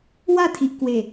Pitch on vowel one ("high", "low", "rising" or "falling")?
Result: falling